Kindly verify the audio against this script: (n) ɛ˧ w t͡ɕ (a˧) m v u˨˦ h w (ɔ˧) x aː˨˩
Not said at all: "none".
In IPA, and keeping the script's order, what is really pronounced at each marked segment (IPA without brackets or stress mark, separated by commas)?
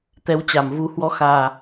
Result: t̪, a˧˩, ɔ˨˦